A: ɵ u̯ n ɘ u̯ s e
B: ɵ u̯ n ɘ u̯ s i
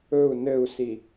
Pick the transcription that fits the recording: B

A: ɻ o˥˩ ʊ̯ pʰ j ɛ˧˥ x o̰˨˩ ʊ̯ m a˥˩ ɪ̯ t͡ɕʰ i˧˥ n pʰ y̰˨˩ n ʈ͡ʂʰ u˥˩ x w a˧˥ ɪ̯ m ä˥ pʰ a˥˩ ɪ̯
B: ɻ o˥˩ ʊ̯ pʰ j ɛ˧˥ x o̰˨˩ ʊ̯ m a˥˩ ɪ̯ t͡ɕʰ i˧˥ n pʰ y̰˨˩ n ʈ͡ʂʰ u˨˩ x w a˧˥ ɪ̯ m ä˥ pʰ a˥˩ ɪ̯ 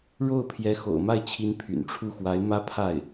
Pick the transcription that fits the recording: A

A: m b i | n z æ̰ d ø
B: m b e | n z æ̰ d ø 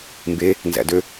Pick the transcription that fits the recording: B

